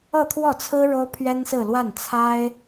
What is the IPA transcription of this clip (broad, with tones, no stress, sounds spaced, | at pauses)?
ɤ˥˧ t̪ʰ w ɔ˥˩ t͡sʰ ɹ̩˥ ɻ o˥ ʊ̯ pʰ ɥ ɛ˥ n s ɹ̩˥˧ l w a˥˩ n t͡sʰ a˥ ɪ̯